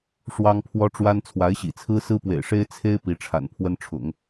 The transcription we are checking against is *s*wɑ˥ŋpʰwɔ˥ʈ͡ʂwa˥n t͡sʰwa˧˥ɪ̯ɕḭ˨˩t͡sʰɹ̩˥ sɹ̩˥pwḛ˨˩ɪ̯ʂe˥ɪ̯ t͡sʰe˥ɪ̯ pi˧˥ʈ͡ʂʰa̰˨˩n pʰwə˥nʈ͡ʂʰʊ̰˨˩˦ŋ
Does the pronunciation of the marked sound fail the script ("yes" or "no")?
yes